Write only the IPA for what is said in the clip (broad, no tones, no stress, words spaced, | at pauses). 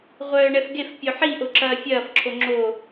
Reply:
ʁʷœːɳɛfɡef pʲoħiʔo ǁɐːfʲɐːf ǁʰoŋ͡ǁo